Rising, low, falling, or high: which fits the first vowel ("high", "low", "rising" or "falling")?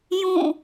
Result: falling